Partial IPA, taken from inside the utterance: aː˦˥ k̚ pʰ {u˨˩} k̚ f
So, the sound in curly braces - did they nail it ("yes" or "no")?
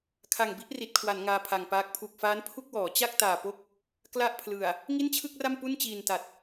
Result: yes